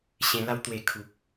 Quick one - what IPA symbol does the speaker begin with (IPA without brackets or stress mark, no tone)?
ɕ